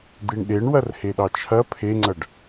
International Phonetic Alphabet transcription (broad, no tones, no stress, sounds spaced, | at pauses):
d̪ i ɳ ɗ e ɳ w ɐ r h e ɗ ɑ t͡ʃʰ ɐ pʰ e ŋ͡ǀ ɐ ɖ